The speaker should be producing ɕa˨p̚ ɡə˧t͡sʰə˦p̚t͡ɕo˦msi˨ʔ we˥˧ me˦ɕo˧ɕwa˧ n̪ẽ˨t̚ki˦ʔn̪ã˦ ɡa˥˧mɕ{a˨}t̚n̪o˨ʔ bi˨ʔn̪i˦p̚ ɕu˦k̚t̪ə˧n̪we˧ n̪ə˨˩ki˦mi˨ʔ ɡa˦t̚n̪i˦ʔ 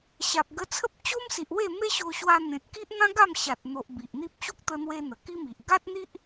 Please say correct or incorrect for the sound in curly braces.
correct